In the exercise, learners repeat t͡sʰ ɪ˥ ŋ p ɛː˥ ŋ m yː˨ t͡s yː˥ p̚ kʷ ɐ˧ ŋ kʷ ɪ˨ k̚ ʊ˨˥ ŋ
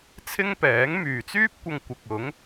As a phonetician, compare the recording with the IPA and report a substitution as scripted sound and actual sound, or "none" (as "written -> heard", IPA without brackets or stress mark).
ɛː˥ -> ɛː˨˥